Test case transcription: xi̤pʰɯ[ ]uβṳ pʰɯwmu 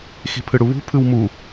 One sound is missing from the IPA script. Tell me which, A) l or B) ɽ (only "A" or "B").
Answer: B